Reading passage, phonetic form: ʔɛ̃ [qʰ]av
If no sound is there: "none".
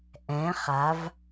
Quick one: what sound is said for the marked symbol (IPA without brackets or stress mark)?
χ